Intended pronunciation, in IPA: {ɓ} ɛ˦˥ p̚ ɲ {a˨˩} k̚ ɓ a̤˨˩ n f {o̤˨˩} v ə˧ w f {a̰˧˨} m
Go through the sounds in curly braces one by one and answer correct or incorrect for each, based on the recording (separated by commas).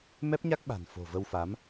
incorrect, incorrect, correct, incorrect